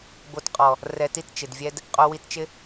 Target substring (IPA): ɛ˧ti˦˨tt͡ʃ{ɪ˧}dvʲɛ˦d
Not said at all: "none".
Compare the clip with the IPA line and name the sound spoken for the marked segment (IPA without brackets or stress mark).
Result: ɪ˨